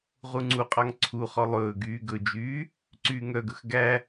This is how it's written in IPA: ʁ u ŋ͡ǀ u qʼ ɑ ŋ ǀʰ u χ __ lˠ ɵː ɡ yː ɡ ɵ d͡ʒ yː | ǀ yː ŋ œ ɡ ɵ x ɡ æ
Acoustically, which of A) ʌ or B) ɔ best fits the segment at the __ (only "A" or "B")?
B